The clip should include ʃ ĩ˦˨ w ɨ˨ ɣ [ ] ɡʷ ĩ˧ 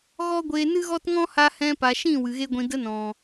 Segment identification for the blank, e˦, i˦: e˦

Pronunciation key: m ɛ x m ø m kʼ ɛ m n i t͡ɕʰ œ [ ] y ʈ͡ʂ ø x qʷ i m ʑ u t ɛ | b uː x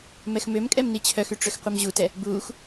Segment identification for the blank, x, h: x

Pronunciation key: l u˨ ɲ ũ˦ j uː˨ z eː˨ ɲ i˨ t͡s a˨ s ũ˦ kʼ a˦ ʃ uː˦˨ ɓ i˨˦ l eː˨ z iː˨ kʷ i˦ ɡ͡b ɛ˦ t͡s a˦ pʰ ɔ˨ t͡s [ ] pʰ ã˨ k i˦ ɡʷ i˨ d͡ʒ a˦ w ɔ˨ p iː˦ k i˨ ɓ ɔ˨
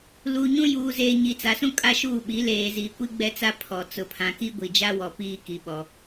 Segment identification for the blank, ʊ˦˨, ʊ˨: ʊ˨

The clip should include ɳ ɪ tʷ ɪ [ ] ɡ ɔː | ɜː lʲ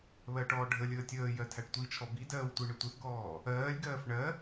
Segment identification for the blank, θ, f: θ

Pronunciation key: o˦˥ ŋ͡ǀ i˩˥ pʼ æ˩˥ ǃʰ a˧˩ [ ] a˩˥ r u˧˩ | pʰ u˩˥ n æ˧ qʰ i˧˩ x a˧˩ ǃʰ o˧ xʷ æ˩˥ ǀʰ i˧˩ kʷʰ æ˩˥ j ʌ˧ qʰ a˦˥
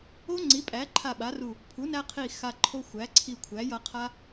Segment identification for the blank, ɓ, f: ɓ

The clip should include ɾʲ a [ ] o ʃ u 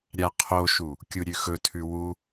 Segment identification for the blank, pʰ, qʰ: qʰ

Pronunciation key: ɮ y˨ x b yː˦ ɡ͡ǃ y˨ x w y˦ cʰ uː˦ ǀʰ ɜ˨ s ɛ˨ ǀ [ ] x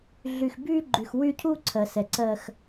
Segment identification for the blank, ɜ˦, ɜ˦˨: ɜ˦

